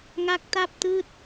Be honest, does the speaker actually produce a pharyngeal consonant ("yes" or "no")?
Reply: no